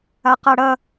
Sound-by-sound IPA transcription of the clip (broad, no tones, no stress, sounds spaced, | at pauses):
a q a ɽ ɐ